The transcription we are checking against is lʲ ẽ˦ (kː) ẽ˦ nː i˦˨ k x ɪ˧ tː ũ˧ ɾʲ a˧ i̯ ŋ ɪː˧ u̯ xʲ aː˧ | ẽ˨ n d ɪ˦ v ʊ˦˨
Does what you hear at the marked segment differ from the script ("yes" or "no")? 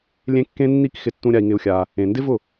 no